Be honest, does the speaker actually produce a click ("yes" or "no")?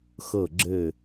yes